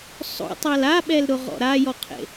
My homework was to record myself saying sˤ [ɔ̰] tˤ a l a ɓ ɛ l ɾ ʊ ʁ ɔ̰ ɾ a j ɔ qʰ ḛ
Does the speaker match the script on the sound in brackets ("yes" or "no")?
no